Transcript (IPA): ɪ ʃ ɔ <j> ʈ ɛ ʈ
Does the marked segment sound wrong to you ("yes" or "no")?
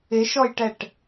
no